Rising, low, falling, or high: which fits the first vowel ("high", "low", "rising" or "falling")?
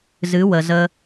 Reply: rising